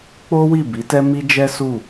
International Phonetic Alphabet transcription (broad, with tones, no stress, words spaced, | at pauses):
k͡po˦wi˦˨ bi˨˦tɛ˦ mi˦d͡ʒɛ˦su˦˨